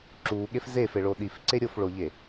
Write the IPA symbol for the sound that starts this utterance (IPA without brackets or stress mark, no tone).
ǁ